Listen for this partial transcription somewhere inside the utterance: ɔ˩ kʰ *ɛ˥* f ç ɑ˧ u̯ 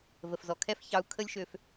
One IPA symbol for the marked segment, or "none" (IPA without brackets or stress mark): ɛ˥